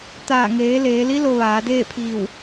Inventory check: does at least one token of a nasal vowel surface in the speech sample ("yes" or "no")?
no